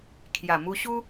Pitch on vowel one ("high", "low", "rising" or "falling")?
low